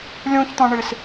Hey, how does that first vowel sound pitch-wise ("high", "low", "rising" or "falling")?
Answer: high